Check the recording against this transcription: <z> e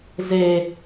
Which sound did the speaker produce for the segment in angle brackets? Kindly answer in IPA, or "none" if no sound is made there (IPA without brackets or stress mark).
z